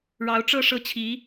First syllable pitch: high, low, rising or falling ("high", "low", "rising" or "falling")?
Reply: rising